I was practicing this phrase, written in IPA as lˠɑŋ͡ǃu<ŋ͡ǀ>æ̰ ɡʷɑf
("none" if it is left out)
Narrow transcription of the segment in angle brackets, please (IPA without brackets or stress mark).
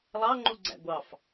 ɡ͡ǀ